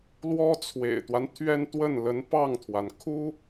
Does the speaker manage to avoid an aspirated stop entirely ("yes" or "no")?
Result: no